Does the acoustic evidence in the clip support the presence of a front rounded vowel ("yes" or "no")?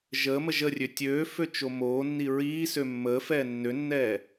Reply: yes